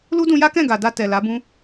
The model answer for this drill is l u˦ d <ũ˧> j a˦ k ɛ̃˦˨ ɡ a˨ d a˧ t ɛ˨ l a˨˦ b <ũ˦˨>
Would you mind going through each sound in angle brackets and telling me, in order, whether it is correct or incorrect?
correct, incorrect

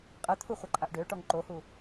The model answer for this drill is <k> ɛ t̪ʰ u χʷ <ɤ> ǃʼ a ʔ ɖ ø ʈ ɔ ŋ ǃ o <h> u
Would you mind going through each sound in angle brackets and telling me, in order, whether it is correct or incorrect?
incorrect, correct, correct

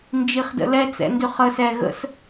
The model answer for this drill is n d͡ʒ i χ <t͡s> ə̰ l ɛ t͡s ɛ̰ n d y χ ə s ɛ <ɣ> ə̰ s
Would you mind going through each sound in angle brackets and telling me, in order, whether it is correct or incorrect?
incorrect, correct

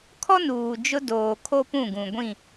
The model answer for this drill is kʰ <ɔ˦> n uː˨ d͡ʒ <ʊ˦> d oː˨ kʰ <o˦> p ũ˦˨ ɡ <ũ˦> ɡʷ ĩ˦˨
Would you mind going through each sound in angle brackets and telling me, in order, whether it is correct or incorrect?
correct, correct, correct, incorrect

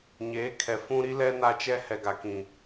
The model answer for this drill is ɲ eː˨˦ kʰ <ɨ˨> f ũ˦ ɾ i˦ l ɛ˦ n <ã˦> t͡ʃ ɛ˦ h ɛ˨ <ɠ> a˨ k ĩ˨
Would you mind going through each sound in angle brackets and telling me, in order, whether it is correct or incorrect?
incorrect, incorrect, incorrect

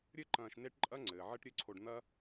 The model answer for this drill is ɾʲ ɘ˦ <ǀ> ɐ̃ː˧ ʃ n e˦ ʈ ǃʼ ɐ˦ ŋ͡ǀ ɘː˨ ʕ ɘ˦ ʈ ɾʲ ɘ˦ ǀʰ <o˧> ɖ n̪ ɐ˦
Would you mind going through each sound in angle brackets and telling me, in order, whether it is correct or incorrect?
incorrect, correct

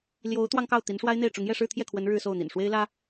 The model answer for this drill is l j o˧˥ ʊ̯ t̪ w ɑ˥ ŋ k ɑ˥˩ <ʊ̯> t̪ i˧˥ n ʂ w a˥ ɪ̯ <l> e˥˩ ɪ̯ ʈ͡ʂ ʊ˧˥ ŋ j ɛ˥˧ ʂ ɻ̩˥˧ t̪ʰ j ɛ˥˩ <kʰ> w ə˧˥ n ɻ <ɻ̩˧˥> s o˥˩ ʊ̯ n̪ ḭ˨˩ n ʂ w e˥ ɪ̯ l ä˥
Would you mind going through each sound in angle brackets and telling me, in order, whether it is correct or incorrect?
correct, incorrect, correct, incorrect

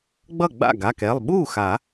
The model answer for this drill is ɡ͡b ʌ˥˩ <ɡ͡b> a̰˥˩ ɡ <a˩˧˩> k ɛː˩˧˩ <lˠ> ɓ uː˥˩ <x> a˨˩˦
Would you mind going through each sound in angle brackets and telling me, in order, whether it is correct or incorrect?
correct, correct, correct, correct

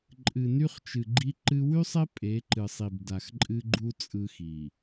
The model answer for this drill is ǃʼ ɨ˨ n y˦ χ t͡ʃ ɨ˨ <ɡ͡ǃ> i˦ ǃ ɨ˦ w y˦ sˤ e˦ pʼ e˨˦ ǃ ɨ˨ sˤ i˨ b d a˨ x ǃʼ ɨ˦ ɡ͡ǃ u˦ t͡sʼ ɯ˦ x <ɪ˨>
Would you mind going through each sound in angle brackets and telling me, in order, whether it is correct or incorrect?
correct, incorrect

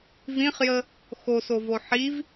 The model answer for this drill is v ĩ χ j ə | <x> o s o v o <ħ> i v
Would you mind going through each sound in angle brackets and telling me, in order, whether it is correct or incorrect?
correct, correct

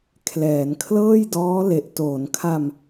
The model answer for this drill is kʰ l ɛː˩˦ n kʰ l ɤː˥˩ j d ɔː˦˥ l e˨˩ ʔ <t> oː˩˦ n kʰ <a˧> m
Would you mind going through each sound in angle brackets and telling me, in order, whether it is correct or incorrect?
correct, correct

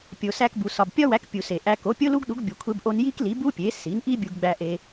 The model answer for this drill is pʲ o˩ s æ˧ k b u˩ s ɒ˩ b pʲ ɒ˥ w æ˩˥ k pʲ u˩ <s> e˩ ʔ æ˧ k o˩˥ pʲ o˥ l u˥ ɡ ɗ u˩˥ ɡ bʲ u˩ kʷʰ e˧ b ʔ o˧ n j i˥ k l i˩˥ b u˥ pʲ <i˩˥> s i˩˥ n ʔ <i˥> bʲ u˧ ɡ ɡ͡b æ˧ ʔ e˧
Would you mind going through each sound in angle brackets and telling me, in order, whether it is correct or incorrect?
correct, incorrect, correct

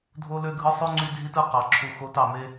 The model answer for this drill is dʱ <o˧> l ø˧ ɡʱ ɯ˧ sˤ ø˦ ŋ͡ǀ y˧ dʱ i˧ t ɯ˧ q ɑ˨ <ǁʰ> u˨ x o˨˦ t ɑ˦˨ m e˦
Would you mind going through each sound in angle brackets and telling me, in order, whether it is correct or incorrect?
correct, correct

